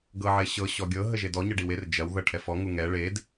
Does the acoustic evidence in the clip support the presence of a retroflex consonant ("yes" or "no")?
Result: yes